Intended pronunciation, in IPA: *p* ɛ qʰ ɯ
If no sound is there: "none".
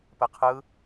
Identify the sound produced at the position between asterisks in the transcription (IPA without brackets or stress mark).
p